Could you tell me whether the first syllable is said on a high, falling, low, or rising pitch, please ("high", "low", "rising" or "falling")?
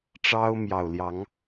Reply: high